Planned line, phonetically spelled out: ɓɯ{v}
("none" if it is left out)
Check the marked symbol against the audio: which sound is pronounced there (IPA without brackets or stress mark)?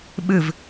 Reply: v